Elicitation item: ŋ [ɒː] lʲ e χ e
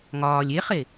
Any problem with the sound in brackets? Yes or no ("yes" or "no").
no